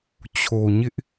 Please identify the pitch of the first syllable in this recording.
low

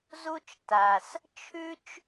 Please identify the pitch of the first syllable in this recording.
high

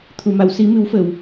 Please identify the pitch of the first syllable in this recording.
low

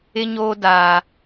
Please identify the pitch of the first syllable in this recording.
high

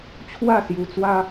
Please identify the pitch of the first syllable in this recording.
falling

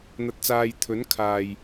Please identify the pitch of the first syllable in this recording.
low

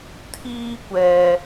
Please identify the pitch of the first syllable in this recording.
high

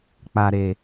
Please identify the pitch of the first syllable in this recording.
low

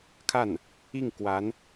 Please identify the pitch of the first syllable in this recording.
falling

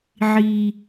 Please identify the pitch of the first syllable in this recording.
high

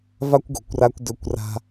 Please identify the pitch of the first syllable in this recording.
high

